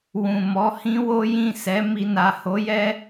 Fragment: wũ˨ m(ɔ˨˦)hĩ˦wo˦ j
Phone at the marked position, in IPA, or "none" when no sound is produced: ɔ˨˦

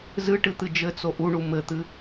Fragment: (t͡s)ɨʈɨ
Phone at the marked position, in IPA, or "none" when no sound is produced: z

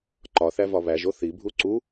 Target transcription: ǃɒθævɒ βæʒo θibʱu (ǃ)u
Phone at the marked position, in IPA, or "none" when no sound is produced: ǀ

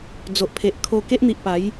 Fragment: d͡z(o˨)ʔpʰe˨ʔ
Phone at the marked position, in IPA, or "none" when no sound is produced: o˨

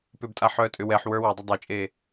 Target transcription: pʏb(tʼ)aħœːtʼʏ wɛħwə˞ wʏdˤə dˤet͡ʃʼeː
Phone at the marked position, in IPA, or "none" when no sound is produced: tʼ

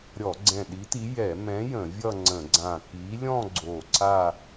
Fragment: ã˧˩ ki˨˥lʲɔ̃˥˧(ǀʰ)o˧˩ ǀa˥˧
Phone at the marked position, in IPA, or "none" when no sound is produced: ɡ͡ǀ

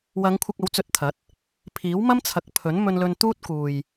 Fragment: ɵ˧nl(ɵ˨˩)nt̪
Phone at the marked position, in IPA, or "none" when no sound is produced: ɵ˧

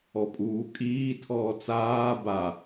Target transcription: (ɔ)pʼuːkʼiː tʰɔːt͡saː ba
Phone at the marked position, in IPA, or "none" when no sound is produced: ɔ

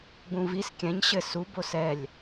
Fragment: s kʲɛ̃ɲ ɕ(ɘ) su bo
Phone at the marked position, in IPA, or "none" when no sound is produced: ɘ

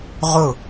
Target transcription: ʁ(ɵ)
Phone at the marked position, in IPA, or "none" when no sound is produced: ʊ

